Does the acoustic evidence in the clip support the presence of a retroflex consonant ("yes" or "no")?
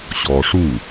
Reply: yes